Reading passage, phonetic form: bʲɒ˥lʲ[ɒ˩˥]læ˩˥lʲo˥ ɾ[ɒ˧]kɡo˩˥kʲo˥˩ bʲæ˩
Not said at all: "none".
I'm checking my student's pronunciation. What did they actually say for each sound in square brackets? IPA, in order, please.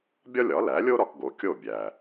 ɒ˩˥, ɒ˧

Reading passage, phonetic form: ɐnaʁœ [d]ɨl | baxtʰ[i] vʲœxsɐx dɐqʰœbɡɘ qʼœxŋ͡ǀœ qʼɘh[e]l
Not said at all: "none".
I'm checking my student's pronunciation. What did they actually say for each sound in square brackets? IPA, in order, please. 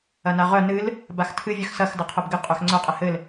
n, ɨ, ɘ

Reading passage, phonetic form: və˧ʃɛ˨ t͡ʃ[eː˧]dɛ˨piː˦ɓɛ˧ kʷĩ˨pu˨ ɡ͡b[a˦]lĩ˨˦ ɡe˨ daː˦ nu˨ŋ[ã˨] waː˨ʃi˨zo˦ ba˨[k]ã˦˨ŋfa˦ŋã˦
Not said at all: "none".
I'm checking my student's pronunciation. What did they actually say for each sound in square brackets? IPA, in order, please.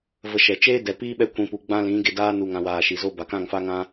eː˦, ã˦, ã˨, k

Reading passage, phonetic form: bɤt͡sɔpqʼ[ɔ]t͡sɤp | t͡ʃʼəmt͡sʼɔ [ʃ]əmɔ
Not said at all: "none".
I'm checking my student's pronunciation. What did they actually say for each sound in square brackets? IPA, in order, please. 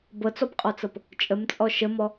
ɔ, ʃ

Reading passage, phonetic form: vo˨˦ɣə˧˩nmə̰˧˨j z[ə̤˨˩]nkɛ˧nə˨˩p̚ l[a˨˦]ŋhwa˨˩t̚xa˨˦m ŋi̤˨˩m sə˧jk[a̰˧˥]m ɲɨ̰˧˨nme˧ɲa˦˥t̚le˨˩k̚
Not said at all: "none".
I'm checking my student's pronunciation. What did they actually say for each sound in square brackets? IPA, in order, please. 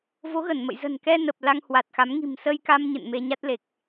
ə̤˨˩, a˧, a˧

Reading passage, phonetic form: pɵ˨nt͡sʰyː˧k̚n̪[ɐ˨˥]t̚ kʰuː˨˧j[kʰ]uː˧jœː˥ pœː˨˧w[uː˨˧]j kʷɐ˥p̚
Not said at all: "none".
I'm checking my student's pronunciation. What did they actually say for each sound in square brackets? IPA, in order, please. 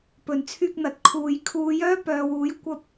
ɐ˨, kʰ, uː˨˥

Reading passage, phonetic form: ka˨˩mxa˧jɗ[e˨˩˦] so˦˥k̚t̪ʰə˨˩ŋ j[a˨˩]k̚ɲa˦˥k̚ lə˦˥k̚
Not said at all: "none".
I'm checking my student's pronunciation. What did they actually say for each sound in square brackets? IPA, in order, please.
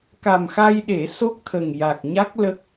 e˨˩˦, a˨˩

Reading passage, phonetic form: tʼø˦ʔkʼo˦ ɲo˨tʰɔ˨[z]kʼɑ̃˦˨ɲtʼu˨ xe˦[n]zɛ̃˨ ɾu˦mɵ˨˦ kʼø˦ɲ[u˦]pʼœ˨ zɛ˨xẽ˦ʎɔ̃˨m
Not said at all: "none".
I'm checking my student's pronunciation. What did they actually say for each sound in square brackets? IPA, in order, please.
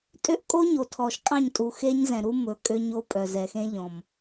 ʃ, ɲ, o˦

